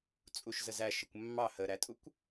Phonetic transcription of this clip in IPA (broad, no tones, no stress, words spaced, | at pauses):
t͡sʼuʃzəzæ ʃəkʷmːɑ həɾætʼukʷ